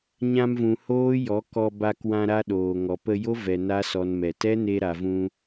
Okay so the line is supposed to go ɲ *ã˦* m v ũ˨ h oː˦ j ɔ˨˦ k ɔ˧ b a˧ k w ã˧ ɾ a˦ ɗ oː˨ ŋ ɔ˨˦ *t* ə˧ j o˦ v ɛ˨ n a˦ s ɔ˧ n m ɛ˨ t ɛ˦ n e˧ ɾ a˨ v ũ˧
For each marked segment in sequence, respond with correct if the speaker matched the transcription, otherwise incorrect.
incorrect: ã˧, incorrect: p

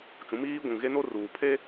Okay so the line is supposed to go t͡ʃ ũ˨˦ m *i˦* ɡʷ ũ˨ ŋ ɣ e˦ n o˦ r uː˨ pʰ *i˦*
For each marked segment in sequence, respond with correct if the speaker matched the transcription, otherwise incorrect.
incorrect: iː˦, incorrect: e˦

